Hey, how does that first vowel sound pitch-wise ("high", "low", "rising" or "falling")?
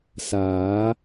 rising